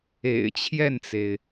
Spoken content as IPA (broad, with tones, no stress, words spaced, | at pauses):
ḛ˨˩ɪ̯t͡ɕʰjɛ˥˩nt͡se˩ɪ̯